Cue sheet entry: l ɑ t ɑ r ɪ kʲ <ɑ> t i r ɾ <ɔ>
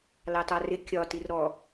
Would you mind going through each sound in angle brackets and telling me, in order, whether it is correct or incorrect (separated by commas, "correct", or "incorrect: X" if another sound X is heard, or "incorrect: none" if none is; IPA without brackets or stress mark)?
incorrect: ɒ, correct